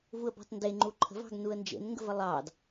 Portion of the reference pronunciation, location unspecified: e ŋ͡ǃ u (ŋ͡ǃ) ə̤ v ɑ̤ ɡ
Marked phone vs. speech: incorrect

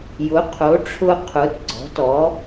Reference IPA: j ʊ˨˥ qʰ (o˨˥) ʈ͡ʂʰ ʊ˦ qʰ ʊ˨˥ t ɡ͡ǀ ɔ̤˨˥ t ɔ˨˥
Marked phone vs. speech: correct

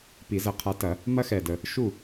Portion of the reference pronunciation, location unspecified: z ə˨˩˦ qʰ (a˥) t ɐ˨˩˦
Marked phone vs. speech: incorrect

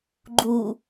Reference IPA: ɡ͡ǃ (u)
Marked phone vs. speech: correct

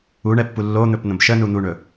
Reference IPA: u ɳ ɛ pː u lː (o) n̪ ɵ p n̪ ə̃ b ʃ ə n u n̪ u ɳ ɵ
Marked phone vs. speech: correct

